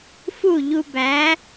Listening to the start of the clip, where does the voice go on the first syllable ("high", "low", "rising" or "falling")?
falling